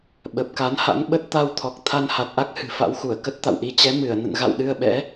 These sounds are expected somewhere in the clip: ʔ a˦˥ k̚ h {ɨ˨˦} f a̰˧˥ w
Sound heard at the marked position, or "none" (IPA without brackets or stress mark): ɨ̤˨˩